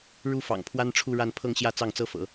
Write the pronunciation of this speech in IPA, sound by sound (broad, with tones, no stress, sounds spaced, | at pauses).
ɻ u˥˩ f ɑ̰˨˩ ŋ pʰ w a˥ n ʈ͡ʂʰ u˥˧ ɻ a˥˧ n pʰ ɤ˥˧ ŋ ɕ j ä˥˧ t͡s ɑ˥˩ ŋ t͡s ɤ˥ f ɤ̰˨˩˦